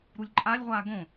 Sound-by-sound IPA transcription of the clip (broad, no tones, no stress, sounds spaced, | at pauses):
ɾ u lʲ ǃʼ a lʲ ʁʷ aː ɡ õ